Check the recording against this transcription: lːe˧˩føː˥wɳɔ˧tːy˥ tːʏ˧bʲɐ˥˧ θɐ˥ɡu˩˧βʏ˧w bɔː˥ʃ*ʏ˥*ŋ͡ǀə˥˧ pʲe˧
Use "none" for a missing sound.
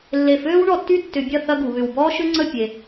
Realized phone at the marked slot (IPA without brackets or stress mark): ʏ˥